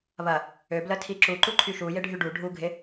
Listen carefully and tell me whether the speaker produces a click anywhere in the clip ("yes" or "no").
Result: yes